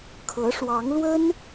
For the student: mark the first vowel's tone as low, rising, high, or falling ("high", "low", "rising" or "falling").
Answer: rising